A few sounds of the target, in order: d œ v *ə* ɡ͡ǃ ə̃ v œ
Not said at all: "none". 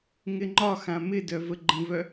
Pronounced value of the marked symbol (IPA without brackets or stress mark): ə